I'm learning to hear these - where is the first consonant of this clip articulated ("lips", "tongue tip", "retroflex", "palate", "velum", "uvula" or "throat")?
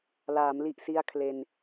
tongue tip